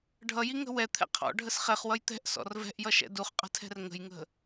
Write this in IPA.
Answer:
ɖʱ ʌ j i ŋ ə̤ w ɛ t̪ʰ ɛ̰ qʰ ɔ̰ ɖʱ ə s χ ɛ χ w ʌ j t̪ ɛ̤ ʔ s ɔ̰ r v ɛ̤ ʔ j ʌ ʃ ɛ̰ d u χ qʼ ə̤ tʰ ɛ̤ r ŋ ə̤ j ŋ ə̤

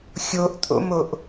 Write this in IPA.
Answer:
xʲ o ʔ tʼ o̰ m o ʔ

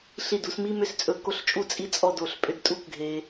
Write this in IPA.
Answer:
ɬ i˧˩ d u˩˧ s m i˥ m ʏ˥˧ s t͡sʼ ɵ˧ k o˥˧ ɬ t͡ʃʼ u˥˧ t͡sʼ i˥ t͡sʼ ɔ˥˧ d o˧˩ ɬ pʼ ʏ˥˧ d tʼ u˥ k ɡʱ e˧

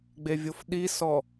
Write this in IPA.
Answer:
ɡ͡b e vʲ o f ɗ i s ɔ

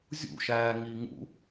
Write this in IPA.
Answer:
zʲ ṵ ʃ æː ŋ i ŋ ṵ

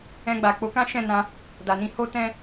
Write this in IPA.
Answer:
ɛ̃˧ ɡ͡b a˨ k͡p o˨˦ k ã˦ ʃ ɛ̃˦˨ n ã˧ | d a˨ n ĩ˧ h o˦ t ɛ̃˦

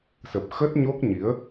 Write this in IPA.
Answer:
s ə˨˩ p̚ x ə˦˥ t̚ ɲ o˦˥ k̚ ɲ i˨˦ ə̯

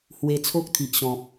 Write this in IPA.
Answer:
h w e˧ t͡sʰ o˦ k̚ t̪ʰ i˨ ʔ ɕ ɔ̃˨ p̚

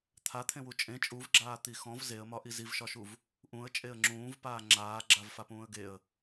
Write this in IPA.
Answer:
t̪ʰ a t̪ʰ ẽ w u t͡ʃʼ ẽ t͡ʃʼ u v ɡ͡ǁ aː t̪ i x ɔ̃ v z e ə̯ m ɒ ʔ i z i v ʃ ɒ ʃ u v | ʔ ũ ə̯ t͡ʃʼ e ə̯ ŋ͡ǁ ũː v p aː ŋ͡ǁ aː ɡ͡ǁ a v f a p ũː ə̯ ɡ e ə̯

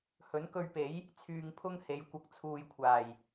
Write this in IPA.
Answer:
h ɵ˨˥ n k ɵ˧ ɥ p e˨˥ j | t͡sʰ yː˧ ŋ pʰ ʊ˥ ŋ h e˨˧ j kʷ ɐ˧ k̚ t͡sʰ uː˨ j kʷʰ aː˨˩ j

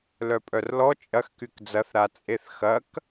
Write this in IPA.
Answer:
l œ pʼ œ r l ɔ t͡ʃʼ ɐ x k y k d͡z ɐ θ ɾ a t͡sʼ e θ x ɐ k

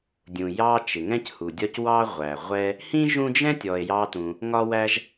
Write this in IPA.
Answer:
dʲ ũ˩ j ɑ˦ t͡ʃ ɪ˩ ŋ ɛ̃˥ c h u˩ dʲ ɒ˥ c w ɑ˥ ʁʷ æ˩ ʁʷ ɛ˦ | h ĩ˥ ʒ ũ˦ d͡ʒ ɛ̃˥ tʲ ɔ˨ e̯ j ɑ˦ t ũ˨ | ŋ ɒ˦ w æ˦ ʒ

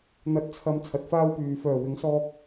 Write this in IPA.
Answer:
n̪ ɐ˨˥ t̚ t͡sʰ ɐ˨ m t͡sʰ ɐ˨ t̚ f aː˥ w p yː˨ f œː˨˩ w ɪ˨˥ ŋ s ɔː˧ k̚

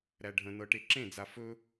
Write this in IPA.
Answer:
ɾ æ ɖʱ ə̃ n ɤ ʈ e ǁ ẽ d͡z a f ɵ

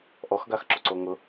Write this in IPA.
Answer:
ʔ ɔ x ɡ a x ǁ o ǀ o ŋ ʊ

